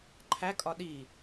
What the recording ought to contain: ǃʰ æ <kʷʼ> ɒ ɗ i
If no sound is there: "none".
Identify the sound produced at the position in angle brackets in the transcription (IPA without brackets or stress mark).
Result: kʼ